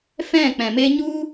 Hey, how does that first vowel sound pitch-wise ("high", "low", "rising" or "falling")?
falling